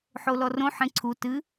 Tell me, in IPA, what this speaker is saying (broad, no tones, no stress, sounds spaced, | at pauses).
ħ o l ɔ r õ ħ ẽ ǀʰ u t ɨ